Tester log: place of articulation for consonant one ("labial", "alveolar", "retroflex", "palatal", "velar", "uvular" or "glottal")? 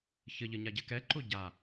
palatal